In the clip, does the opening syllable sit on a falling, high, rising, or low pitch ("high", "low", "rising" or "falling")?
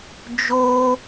high